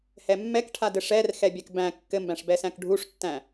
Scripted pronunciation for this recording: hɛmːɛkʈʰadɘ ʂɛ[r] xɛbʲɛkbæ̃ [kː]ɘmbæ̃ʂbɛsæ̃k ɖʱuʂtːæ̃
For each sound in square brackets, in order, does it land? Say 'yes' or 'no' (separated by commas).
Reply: yes, yes